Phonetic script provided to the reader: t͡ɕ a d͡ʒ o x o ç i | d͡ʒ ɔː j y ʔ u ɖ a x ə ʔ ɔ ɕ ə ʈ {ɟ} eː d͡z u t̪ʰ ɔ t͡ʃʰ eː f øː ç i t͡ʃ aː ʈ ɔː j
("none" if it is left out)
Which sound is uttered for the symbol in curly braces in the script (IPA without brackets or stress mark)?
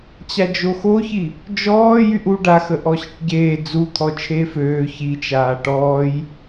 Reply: ɟ